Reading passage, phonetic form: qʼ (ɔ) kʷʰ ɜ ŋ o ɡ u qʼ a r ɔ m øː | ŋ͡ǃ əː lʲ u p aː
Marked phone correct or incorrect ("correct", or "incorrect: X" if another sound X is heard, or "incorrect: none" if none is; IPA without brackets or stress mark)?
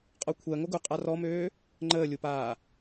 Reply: correct